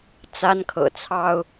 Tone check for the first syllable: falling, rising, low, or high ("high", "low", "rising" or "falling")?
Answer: high